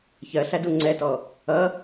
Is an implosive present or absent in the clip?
absent